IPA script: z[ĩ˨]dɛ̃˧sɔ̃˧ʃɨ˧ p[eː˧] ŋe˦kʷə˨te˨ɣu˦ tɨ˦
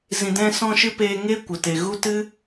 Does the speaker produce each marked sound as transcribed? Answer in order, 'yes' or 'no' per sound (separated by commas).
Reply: yes, yes